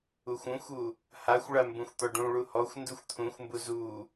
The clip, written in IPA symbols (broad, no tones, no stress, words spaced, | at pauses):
uxʷũxʷu | haxʷɭa mbũxʷt̪ɔɖũɭu hɔxʷnduxʷ t̪ʰũxʷmbu zu